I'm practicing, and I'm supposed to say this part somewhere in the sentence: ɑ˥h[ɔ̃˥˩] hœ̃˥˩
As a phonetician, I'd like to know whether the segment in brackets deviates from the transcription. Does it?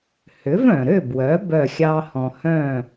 yes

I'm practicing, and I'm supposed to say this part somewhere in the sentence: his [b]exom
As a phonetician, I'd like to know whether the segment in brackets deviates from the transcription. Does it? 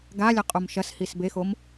no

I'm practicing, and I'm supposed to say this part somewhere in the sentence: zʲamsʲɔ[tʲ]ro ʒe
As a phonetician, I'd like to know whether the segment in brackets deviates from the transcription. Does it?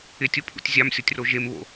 no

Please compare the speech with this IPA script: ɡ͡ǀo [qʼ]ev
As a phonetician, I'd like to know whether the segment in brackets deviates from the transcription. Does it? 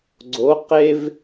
yes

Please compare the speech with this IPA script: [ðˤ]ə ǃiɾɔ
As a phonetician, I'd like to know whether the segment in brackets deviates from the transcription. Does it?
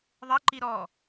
no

